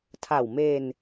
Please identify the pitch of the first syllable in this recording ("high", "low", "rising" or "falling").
low